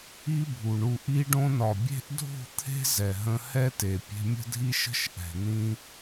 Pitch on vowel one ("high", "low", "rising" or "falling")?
high